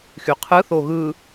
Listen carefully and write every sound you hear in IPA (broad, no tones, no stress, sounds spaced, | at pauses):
x y qʰ ɯ θ o ɣ ɯ